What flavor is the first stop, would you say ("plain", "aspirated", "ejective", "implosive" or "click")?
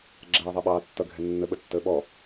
click